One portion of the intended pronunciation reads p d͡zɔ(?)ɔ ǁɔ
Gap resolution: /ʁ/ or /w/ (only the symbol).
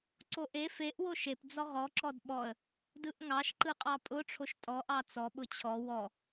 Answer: ʁ